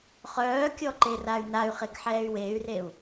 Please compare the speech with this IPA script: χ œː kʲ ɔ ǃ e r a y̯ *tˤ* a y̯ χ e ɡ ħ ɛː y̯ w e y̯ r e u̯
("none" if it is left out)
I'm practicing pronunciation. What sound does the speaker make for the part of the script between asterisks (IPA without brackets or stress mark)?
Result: n